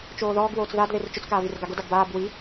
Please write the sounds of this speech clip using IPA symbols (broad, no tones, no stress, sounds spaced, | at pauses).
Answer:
t͡ʃ oː ð ɔː ɡ w oː t͡s ð a d ð e r t͡ʃ ʊ t͡s k aː v i r ɡ a ɡ ʊ d a ɡ b aː b w i